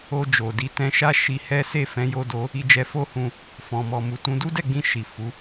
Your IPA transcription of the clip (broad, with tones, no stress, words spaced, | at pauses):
o˧d͡ʒo˨di˨˦ tɛ̃˧ʃa˦ ʃi˧hɛ˦ se˦˨fɛ̃˨˦ jo˧ do˧ | i˧d͡ʒɛ˧fo˦hũ˧ | fɔ̃˨mɔ˨ mu˨tũ˧ du˦dɛ˦˨ɡ͡bĩ˧ ʃi˨ fu˨˦